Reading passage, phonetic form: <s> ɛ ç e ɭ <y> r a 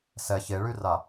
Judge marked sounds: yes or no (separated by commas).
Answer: yes, yes